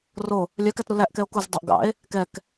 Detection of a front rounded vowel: present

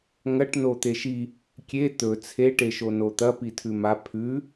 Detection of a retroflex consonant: present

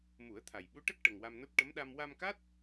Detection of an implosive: present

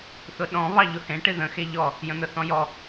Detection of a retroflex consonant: present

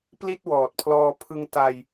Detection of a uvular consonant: absent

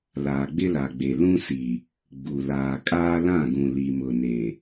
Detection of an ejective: present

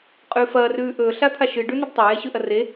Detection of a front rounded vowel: absent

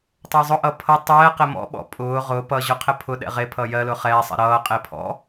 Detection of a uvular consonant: present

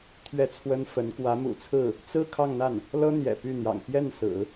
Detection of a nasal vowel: absent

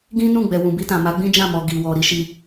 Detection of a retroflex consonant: absent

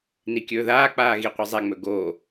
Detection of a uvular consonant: present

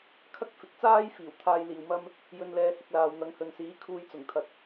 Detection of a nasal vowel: absent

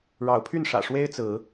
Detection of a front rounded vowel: present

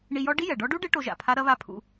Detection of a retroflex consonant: present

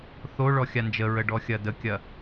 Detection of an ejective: absent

